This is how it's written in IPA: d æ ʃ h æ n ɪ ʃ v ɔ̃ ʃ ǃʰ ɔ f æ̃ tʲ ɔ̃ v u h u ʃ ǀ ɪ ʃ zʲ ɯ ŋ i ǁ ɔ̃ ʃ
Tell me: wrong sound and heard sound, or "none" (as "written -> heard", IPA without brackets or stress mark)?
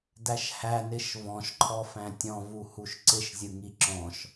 none